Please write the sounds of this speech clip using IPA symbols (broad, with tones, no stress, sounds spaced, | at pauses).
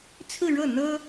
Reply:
t͡sʰ ɹ̩˥˧ ɻ ɤ˥˩ n̪ ɤ˥